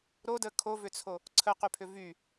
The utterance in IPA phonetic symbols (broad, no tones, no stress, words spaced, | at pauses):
ɾodə kʰovʏt͡sʰo | ǀʰəqypʰʏ vy